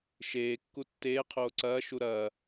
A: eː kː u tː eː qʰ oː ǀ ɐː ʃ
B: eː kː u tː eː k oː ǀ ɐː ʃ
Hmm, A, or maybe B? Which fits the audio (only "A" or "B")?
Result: A